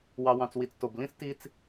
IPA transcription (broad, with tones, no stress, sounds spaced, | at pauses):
w ɑ˨ w ɑ̃˨ t͡s w i˨ t͡s t o˨ b l ĩ˦ s t i˦ t͡s